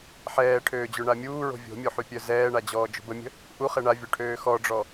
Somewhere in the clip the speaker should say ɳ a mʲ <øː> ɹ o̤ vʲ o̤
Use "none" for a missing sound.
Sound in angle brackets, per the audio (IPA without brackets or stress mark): uː